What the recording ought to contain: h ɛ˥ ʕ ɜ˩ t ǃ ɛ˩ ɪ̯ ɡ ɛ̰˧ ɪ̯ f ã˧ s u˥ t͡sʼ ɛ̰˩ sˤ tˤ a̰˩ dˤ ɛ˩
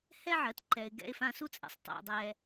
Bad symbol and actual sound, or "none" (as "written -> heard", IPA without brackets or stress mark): none